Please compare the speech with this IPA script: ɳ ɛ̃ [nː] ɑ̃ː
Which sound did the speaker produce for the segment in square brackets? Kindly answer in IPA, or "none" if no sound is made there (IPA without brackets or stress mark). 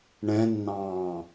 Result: nː